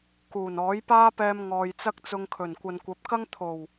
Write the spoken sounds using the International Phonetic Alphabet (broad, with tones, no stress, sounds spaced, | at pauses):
k uː˨˩ n ɔː˨˥ j p aː˥ p ɛː˧ m ŋ ɔː˨ j t͡s ɐ˥ k̚ t͡s ʊ˧ ŋ kʰ ɵ˨˩ n kʷ ɐ˨ n kʷ ɐ˨˥ p̚ k ɐ˥ ŋ t̪ʰ o˨˩ w